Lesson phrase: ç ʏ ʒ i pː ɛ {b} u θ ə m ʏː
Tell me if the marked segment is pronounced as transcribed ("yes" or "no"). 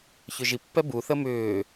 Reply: yes